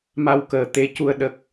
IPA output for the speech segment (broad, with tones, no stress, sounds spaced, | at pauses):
m a˧ w k əː˨˩ t̪ e˧˥ c u˧ ə̯ ɗ ə˦˥ k̚